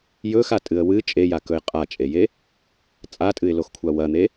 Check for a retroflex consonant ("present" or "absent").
absent